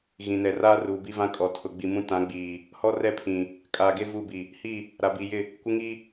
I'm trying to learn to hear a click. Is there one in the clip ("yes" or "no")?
no